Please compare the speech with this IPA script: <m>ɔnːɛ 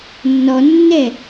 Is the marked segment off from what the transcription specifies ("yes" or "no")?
yes